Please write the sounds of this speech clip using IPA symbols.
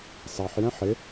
s ɑ ħ j ɛ̃ ħ ɪ

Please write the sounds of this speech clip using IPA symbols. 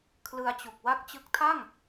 kʰ l ɯ˧ a̯ t͡ɕ u˨˩ k̚ w a˦˥ k̚ t͡ɕ ɯ˦˥ k̚ tʰ a˥˩ ŋ

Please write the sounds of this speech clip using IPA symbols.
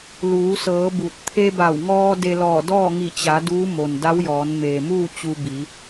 l uː˩˧ s ɤː˩˧ b u˧˩ t̚ t̪ʰ e˧ b a˧˩ w ŋ ɔː˧ d e˧ l ɔː˧˩ d ɔː˥˨ ŋ i˧˩ t͡ɕ a˩˧ d uː˧˥ m o˩ n d a˧˥ w j ɔː˩˧ n m eː˩ m uː˥˨ t͡ɕ u˧ b i˩˧

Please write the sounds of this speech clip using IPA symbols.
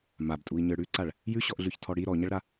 m a b tʼ u i̯ ɲ ə˞ ɽ ʉ ǀ a ɭ | j ʉ ɕ ɔ ʔ ɮ ʉ ç tʰ ɔ ɽ i ɾ ɔ ɲ ʌ ɭ ɾ a

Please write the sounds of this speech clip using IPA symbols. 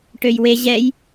ʈ ø j w e ʑ ɛ j

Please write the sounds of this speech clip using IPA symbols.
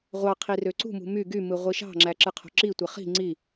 ʁʷ ɑ qʰ i r ø ǀ ṳ m ṳ m y ɡ y m ɯ ʁʷ i ʃ ɑ̤ ŋ͡ǁ æ ǁ ɯ qʰ o̤ ǁ i tʷ e χ i̤ ŋ͡ǀ i

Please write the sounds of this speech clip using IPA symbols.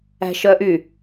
æ̤ ʃ œ ʔ y

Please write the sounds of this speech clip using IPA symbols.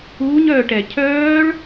uː ɲ œː ʈ ɛ cʰ œː ɭ

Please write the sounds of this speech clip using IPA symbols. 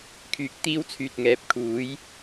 kʰ yː˨˥ k̚ t̪ iː˧ w t͡sʰ yː˨ t̚ ŋ ɛː˨ p̚ kʰ uː˨˥ j

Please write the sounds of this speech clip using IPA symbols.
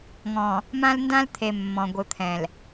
ŋ ɔ̃˨ | m ã˦ l n d ã˦ l t̪ʰ e˨ mː ɔ̃˨ ɡʷ ɯ˨ t̪ʰ ɛ̃˨ l

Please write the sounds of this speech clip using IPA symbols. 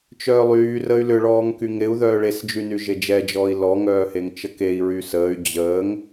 t͡ʃ œː lˠ yː r əː y̯ l ʏ ɭ ɔː ŋ k y ŋ ɾ ɪ u̯ ð œː ɭ e s d͡ʒ y n y ʒ e d͡ʒ ɛ d͡ʒ ɔː i̯ l ɔ ŋ œː h e ŋ t͡ʃ ə k e i̯ ɹ yː s əː y̯ d͡ʑ əː ŋ

